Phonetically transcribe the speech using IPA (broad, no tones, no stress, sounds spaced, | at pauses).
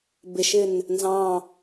b ɪ ʃ ɪ n | n z ɑ̃